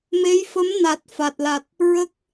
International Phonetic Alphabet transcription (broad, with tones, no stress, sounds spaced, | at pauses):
m e˧˥ j f ə˧˥ m n a˨˩ t̚ f a˨˩ t̚ l a˨˩ t̚ | ɹ ə˦˥ k̚